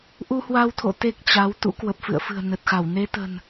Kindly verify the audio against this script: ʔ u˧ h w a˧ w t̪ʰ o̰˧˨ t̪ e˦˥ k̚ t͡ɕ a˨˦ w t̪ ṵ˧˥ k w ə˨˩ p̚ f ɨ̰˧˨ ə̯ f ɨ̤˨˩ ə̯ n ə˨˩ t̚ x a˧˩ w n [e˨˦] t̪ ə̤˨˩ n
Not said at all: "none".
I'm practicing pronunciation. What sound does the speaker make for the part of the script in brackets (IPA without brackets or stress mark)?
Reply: e˨˦